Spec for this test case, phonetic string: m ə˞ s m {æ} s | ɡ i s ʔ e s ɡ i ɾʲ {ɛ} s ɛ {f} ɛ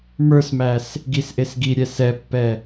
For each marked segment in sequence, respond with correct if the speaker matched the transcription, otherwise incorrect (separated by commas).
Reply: correct, correct, incorrect